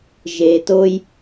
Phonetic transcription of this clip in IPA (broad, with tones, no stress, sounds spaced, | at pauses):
ʒ e˩ t o˨ j